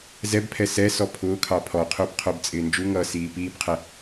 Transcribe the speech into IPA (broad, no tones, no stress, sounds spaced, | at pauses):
z ɛ b pʰ ɛ s ɛ s ɔ pʰ ʊː kʰ ɑ pʰ ɔ qʰ ʊː b qʰ ə˞ b t͡sʼ ɪː n d͡ʒ u ŋ ʌː s iː p iː b qʰ ɛ